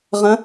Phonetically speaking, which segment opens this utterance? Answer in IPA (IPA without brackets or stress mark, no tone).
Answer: ʁ